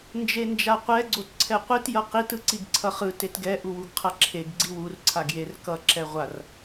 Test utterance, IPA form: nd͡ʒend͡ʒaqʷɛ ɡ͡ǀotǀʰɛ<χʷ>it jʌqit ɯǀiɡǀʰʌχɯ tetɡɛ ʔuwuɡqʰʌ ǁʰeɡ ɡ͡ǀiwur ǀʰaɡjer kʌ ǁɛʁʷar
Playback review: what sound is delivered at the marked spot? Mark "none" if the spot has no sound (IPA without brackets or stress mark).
qʷ